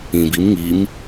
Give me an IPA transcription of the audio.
ĩ b i m ŋ i m

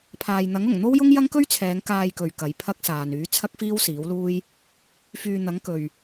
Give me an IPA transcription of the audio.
pʰ aː˨ j n̪ ɐ˨˥ ŋ ʊ˨˩ ŋ n̪ o˥ w j ʊ˥ ŋ j ɐ˥ ŋ k ɵ˥ ɥ t͡sʰ ɛː˨˧ ŋ k aː˧ j k ɵ˨ ɥ k ɐ˨˧ j pʰ ɐ˥ k̚ s aː˨ n yː˨˥ t͡sʰ ɐ˥ k̚ f iː˥ w s iː˨˥ w l uː˥ j | f yː˨ n̪ ɐ˨˥ ŋ k ɵ˨ ɥ

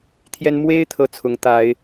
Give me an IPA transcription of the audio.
t̪ʰ j ɛ˦ n m w e˦ ɪ̯ t̪ʰ ɤ˦ t͡sʰ ʊ˨˦ ŋ t̪ a˨˦ ɪ̯

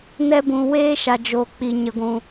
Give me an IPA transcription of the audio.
n ɛ˧ b ũ˨ w eː˦ ʃ a˨ d͡ʒ o˨ k͡p i˨ ɲ ə˨ ɡʷ ũ˨

